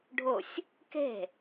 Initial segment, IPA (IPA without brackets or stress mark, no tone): ɖʱ